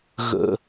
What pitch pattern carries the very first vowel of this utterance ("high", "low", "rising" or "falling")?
low